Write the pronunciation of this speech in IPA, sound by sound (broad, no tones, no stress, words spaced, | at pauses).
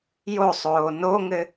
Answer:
josˤoː noŋɘ